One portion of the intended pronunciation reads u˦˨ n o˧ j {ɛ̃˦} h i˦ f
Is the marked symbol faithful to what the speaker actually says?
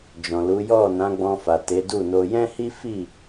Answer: yes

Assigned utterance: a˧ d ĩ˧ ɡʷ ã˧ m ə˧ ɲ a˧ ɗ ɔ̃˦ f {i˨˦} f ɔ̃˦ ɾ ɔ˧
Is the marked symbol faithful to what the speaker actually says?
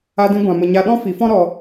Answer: yes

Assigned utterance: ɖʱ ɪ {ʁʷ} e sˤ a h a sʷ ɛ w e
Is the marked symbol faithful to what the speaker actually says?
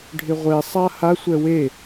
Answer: yes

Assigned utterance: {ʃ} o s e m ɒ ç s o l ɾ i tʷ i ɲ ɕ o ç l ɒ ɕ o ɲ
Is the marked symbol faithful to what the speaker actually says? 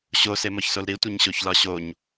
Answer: no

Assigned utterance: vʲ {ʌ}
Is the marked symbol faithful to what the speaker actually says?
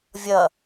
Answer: yes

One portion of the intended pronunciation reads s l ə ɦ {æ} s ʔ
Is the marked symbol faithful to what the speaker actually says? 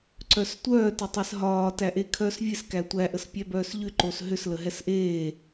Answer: no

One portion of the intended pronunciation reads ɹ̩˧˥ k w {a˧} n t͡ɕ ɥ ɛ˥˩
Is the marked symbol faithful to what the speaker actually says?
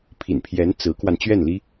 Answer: yes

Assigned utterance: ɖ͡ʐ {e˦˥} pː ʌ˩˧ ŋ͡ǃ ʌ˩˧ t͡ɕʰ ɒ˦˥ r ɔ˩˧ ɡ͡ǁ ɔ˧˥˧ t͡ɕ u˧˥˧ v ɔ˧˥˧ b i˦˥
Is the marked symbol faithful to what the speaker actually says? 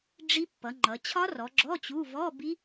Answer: no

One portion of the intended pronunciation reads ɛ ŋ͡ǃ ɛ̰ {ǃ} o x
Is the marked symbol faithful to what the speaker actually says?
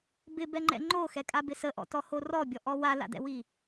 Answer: no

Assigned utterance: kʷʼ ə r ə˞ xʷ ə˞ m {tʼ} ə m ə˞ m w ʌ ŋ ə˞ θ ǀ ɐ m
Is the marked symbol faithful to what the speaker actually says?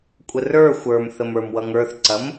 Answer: no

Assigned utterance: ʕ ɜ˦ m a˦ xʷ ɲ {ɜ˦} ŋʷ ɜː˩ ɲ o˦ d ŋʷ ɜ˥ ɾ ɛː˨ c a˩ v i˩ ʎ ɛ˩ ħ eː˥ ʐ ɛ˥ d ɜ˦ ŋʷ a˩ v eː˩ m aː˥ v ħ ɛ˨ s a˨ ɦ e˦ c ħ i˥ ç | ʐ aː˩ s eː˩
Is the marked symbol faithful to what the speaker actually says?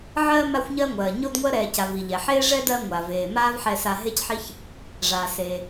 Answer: yes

